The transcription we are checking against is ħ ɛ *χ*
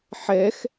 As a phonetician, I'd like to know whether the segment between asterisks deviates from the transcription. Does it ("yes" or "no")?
yes